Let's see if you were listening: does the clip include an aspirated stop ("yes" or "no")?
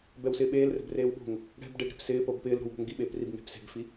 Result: no